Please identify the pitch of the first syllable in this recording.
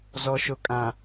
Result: low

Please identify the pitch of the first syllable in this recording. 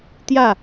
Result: falling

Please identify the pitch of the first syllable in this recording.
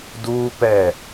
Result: high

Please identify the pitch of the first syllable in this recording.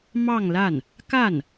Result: falling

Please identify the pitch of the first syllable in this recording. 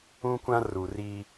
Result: high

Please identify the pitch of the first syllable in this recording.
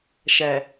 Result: low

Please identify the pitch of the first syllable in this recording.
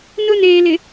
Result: high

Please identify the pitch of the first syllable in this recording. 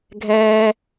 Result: high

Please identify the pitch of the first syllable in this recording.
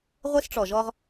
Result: high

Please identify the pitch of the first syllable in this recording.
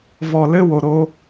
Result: low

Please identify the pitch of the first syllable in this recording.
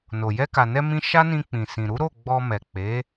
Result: low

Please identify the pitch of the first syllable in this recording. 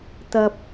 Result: high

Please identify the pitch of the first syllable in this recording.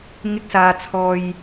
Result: high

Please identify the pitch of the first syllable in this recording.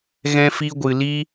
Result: high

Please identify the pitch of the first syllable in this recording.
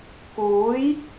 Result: rising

